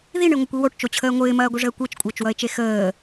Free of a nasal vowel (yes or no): yes